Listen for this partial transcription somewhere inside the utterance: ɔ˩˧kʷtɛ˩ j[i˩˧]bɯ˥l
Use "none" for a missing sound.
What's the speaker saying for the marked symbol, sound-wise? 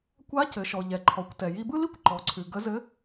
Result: i˧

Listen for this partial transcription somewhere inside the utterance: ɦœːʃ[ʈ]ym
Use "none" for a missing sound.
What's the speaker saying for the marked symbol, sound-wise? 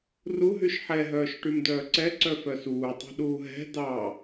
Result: ʈ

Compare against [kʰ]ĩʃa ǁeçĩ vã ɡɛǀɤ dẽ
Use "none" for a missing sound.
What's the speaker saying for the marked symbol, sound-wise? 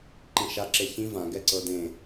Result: ǃ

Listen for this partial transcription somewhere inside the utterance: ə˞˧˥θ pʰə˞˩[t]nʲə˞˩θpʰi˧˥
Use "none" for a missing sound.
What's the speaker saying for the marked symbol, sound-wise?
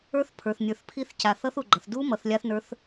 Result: θ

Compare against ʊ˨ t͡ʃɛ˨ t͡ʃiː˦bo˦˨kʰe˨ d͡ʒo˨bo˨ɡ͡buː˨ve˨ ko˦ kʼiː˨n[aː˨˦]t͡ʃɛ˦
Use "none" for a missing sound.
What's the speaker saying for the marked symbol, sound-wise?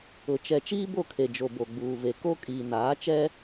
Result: aː˨˦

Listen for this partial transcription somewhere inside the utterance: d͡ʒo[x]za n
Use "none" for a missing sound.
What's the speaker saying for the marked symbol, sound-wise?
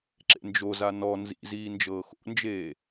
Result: none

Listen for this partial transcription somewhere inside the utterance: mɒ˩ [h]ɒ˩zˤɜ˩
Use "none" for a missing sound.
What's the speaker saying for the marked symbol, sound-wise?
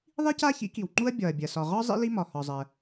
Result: h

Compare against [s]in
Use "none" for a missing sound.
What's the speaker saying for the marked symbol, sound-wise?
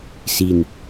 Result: s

